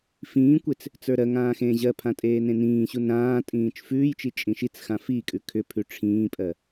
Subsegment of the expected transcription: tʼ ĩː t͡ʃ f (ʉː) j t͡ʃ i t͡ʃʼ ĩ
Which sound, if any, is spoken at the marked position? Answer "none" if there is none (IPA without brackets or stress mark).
ʉː